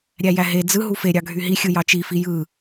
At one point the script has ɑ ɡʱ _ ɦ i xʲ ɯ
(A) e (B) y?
B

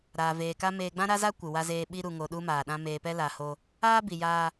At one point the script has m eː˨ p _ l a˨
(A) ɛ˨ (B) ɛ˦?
B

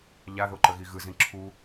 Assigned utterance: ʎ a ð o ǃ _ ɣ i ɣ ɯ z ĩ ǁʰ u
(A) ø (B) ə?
B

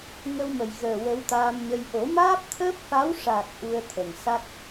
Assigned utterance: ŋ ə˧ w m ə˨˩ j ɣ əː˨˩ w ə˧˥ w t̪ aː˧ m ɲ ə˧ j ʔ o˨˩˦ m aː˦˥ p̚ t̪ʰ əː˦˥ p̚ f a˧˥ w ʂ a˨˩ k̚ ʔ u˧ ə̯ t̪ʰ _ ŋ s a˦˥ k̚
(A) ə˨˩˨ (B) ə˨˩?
B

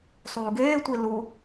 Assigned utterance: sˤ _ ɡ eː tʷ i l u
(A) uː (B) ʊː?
A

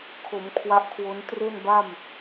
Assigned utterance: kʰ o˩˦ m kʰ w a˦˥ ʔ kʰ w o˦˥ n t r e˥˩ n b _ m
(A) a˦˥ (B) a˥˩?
B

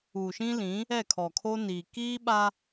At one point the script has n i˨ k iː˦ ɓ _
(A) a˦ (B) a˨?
A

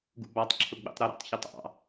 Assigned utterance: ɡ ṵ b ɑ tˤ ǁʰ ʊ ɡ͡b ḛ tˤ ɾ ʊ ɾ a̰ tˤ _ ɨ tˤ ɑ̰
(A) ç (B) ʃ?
A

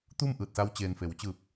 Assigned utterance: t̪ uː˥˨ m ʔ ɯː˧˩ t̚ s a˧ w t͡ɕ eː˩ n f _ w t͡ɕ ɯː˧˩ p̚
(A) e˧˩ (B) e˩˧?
B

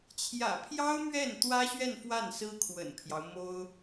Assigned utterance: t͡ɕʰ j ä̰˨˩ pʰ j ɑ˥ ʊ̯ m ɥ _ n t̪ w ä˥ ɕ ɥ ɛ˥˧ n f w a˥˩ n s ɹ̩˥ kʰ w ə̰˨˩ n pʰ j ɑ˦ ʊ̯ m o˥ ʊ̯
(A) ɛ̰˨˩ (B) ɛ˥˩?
B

